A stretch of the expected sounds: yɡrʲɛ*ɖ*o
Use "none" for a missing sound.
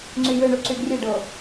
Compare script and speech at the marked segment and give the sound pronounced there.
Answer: ɖ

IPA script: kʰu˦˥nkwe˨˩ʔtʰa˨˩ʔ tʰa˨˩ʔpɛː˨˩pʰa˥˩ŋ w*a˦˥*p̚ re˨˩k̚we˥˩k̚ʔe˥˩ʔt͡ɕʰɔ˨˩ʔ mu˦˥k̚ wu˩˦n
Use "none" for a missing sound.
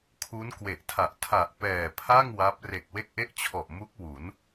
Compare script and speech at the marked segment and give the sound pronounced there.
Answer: a˦˥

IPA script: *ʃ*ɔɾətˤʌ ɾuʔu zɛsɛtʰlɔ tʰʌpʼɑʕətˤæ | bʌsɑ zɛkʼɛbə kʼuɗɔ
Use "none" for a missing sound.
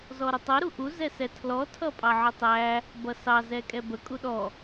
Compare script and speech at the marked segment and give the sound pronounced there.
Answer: z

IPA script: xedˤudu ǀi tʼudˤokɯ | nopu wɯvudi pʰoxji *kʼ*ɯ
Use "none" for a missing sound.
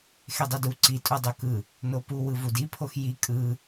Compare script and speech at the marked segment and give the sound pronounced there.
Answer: kʼ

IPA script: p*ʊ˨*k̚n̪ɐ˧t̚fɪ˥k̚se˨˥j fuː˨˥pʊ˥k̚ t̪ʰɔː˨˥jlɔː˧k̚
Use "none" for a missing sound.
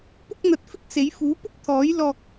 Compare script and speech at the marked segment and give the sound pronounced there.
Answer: ʊ˥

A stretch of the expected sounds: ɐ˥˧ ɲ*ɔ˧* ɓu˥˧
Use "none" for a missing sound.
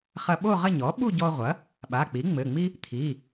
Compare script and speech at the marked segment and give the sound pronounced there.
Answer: ɔ˩˥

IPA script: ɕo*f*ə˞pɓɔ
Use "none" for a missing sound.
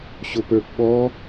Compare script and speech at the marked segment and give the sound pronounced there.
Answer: p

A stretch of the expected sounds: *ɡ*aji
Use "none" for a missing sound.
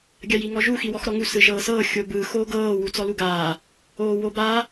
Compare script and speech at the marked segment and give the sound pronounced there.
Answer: ɡʲ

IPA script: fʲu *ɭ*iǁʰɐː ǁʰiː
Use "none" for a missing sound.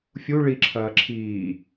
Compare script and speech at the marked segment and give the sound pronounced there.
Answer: ɭ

